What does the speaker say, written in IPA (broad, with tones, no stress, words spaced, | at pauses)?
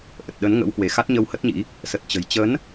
ʔə˨˩t̚ɗə˨˦nŋə̰˧˥whwe˧˩ xa˦˥t̚ɲə˧whə˦˥t̚ɲḭ˧˥ | sə˨˩t̚t͡ɕə̤˨˩j t͡ɕə˨˦n